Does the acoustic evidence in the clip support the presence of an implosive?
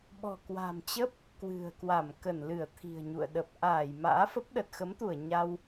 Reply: yes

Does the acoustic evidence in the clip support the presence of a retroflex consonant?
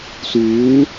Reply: no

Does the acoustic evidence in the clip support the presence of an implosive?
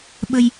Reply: yes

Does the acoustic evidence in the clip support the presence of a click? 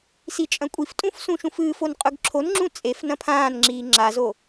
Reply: yes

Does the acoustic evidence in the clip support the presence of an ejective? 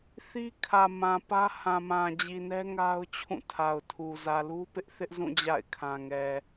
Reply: no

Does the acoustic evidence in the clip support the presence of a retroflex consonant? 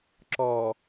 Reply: no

